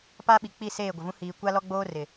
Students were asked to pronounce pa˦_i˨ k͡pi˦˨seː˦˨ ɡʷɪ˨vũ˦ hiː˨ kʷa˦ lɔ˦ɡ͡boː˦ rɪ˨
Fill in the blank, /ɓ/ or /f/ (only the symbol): ɓ